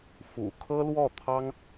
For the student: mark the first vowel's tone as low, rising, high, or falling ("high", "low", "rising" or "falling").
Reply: low